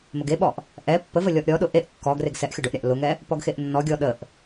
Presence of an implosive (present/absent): present